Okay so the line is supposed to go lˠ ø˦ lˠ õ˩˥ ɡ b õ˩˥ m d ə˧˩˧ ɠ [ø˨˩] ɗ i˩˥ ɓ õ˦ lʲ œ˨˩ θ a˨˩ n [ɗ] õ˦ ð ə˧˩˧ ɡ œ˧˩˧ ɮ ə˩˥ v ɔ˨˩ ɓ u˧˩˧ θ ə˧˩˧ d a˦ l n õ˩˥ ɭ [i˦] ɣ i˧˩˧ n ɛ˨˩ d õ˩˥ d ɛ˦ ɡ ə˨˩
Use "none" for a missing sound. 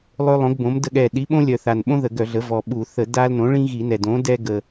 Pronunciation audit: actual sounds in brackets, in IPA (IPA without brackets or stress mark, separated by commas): ɛ˨˩, ɓ, ĩ˦